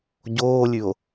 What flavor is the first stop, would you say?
plain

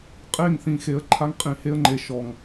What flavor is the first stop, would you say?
ejective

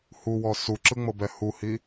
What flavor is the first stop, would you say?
click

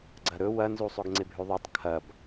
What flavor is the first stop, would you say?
click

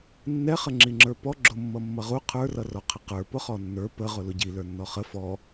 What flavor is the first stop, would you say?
click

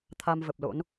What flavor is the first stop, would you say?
aspirated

